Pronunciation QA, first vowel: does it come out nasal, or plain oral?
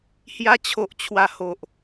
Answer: oral